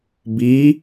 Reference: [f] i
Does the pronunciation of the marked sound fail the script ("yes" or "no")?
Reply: yes